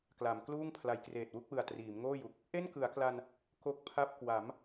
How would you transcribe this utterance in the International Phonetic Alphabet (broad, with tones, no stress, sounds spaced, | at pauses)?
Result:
k l a˩˦ m k l uː˥˩ ŋ pʰ l a˩˦ j k r eː˨˩ t̚ w u˥˩ k̚ w ɯ˨˩ a̯ t r iː˩˦ m ŋ oː˥˩ j u˨˩ k̚ | ʔ e˥˩ n k ɯ˩˦ a̯ k l a˧ n | k o˦˥ k̚ pʰ a˥˩ p̚ k w a˩˦ m